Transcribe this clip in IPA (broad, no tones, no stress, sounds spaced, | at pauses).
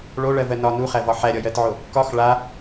ɭ o ɭ ɜ v ɜ n ɒ n u χ æ v ɒ ħ æ ɾʲ ɒ j ɜ t ʕ o | k ɒ x ɭ a